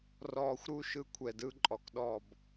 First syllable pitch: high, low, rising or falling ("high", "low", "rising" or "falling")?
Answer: low